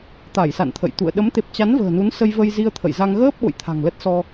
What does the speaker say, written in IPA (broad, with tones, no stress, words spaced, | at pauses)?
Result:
t̪a˧˩jsa̰˧˨nt̪ʰə̰˧˨jt̪ṵ˧˨ə̯ ɗə˨˦mt̪e˨˩p̚t͡ɕa˨˦n və̤ː˨˩nu˨˦nsə˧j və˧jzi˧ə̯t̪ʰə̰˧˨jza˧ŋ ɣəː˦˥p̚ ɓo̰˧˨jt̪ʰa̤˨˩ŋlə˦˥t̚ sɔ˧